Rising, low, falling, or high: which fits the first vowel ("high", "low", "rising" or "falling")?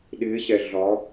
rising